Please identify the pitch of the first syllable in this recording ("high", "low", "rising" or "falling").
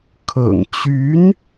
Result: low